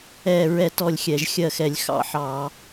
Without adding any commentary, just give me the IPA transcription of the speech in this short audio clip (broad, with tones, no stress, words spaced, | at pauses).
ɛ˦˨ɹɛ˦˨t ɔ˦˨lʲxʲɛ˧˩˧ʒxʲɜ˦˨xɛ˧˩˧lʲ xɑ̰˦˨ħɑ˧˩˧